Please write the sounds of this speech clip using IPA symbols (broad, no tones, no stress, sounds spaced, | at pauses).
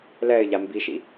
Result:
l ɛ ɪ̯ ʎ a m b i ʃ ḭ